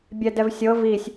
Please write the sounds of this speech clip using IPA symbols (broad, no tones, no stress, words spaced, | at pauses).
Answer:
bʲɛdɛvsʲɤ visʲ